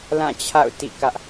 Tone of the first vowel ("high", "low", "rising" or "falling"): falling